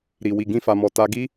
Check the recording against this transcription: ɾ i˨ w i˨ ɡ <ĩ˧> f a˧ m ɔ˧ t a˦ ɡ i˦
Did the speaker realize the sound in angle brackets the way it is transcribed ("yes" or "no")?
yes